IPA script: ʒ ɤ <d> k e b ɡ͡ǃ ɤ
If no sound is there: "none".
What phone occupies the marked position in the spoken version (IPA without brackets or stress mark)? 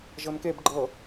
n